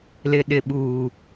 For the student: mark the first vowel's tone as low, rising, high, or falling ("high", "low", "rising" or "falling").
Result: low